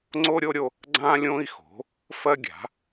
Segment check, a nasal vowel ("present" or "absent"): present